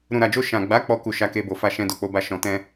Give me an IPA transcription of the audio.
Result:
ɾ ũ˨ ɾ a˨ d͡ʒ o˧ ʃ ã˨ ɡ͡b a˨˦ k͡p ɔ˧ k u˨ ʃ a˨˦ k e˧ b o˨ f a˧ ʃ ɛ̃˧ d o˨ k͡p o˨˦ b a˧ ʃ ɔ̃˨ t ɛ̃˧

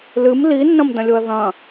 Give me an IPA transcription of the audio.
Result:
l ɨ m l i nː ɐ̃ m d ɐ̃ lʲ o ɐ̯ ð ɐ̃

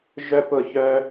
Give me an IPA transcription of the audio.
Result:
ʒ œ˥ p ʊ˥˧ ç œ˥

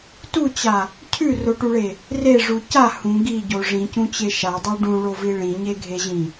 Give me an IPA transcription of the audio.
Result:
t u t͡ɕ a | cʰ ʉ r o ʈ u ɭ e | r e ʐ u c a h ũ ɡ i ɟ o ʐ ĩ c ũ t͡ɕ e ʃ a dˤ o ɖ ũ ɭ o v i ɭ ĩ ɲ e ɡʱ e ʑ ĩ

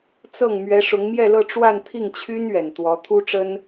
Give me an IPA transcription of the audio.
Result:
t͡s ɤ˥˩ ŋ m ɥ ɛ˧˥ ʂ ʊ˧˥ ŋ m j ɛ˥˧ l ɤ˥˧ ʈ͡ʂ w a˥˧ n t̪ʰ i˥˩ ŋ t͡ɕʰ y˥ n ɥ ɛ˨˩ n t̪ w ɔ˧˥ t̪ʰ u˥ ʈ͡ʂ ə˥ n

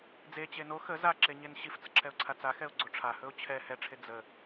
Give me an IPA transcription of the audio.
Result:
d͡z e t͡ɕ e n o x ə z a ǁ e ɲ e n ɕ i f t͡s ə ǁʰ ɛ ʊ̯ ǀʰ a t͡s a x ɛ ʊ̯ ɡ͡ǀ o ʈ͡ʂʰ a h ɵ ʊ̯ t͡ɕʰ ɛ h ɛ ʈ͡ʂʰ e d͡z ə

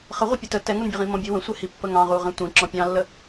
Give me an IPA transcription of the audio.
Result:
χ ə ʁʷ ə pʲ ə t ə t ɛ ŋ u n bʲ ə ʁ ĩ m ɔ̃ bʲ u w ə̃ sʷ ɛ h i pː ə ŋ ɑ̃ ʁ u ʁ ɛ̃ tʷ ĩ ǁ ɔ̃ pʲ ɑ̃ lː ə

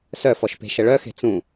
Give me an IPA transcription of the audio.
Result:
s œ f ɔ ʃ p e̤ ʃ ə ɭ œ x e̤ t͡s ũ

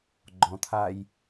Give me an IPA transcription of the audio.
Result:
ɡ͡ǃ ɔ̃ t̪ʰ a j

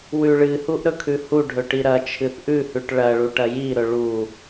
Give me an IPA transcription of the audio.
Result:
w ʉ ɭ ɨ h u ʔ ɾ ɵ kʰ ʉ h u ɖʱ ɵ ʈ i ɾ ɐ t͡ʃʰ ɨ θ ʔ ʉ h ʉ ʈ ɭ ɐ ɭ u ʈ ɐ j i ɾ ɵ ɭ u

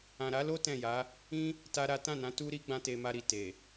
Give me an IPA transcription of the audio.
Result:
ã˨ ɾ a˨˦ l o˦ t ɛ̃˦˨ j a˨˦ | ĩ˦ | t a˦ ɾ a˦ t ã˦˨ n ã˨˦ t u˦ ɾ i˦ ɡ͡b ã˦ t e˧ m a˧ ɾ i˨ t e˨

